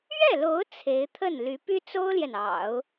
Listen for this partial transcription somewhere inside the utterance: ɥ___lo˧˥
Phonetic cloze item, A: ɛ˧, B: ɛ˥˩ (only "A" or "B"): B